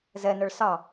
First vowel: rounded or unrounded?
unrounded